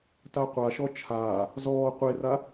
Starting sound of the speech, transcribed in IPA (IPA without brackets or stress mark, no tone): t